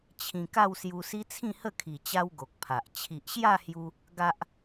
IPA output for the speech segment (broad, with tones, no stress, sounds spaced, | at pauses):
t͡ɕʰ ĩ˧ k a˥˧ w s j u˧ s i˦ t͡sʰ ĩ˥˧ h ə˥˧ kʰ i˨˩ t͡ɕ a˦ w ɡ o˨ k̚ pʰ a˨ ʔ t͡ɕʰ i˨ ʔ ɕ j a˥˧ h j u˧ | ɡ a˦ ʔ